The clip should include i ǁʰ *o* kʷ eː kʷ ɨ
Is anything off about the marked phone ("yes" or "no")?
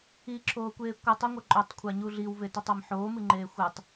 yes